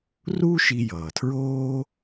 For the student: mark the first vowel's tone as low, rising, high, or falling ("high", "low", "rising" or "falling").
high